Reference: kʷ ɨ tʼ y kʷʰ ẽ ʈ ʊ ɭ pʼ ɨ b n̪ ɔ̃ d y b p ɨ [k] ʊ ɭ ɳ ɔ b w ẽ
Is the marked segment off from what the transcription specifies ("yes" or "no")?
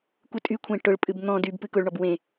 no